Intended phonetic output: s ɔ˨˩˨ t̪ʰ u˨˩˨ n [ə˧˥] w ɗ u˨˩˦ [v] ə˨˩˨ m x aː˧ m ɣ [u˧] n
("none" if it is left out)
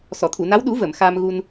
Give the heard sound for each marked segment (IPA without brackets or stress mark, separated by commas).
a˧˥, v, u˧